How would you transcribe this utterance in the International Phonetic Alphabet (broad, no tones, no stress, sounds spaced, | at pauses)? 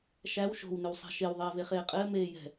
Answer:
ʃ æ w ʃ o̤ w n ʏ w sˤ a̤ ʃ e w ðˤ ɜː v e χ eː qʼ ɘː m eː j ɛ̤